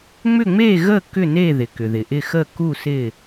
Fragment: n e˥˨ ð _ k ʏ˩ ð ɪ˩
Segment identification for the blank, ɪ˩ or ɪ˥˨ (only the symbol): ɪ˩